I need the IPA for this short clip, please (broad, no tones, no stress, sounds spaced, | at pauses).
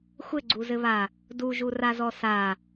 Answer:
xʷ ɘ ɡ͡ǀ u z ɘ β a | d u ʒ u r a z ɔ s a